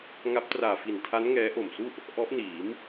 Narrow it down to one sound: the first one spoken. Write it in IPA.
ŋ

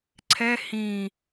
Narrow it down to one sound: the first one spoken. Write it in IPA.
ǀʰ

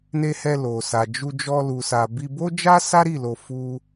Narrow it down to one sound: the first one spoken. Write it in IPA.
n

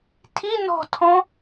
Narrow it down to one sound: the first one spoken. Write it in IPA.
tʰ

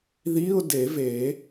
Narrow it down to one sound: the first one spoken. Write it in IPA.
ð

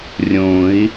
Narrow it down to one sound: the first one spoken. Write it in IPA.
rʲ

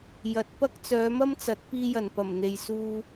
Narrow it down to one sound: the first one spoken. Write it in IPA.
j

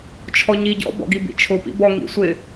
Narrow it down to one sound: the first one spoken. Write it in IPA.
t͡ʃʰ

